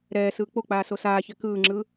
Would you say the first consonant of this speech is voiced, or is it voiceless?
voiced